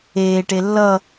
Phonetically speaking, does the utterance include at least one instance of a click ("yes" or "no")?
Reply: no